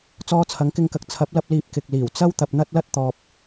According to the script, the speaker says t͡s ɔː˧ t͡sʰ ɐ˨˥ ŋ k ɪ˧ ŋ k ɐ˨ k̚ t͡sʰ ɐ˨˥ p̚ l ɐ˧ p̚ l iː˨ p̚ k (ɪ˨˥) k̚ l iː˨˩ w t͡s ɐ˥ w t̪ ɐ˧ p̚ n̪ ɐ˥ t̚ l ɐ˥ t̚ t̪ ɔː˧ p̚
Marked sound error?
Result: yes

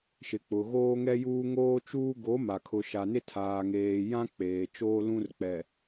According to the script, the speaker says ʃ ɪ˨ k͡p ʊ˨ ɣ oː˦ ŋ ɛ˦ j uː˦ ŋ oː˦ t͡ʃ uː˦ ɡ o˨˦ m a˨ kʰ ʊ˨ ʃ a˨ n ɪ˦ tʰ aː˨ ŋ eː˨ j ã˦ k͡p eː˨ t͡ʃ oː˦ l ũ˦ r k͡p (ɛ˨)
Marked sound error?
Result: no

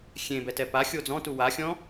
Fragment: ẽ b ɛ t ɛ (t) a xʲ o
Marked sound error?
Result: yes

